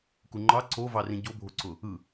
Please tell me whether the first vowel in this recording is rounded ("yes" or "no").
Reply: yes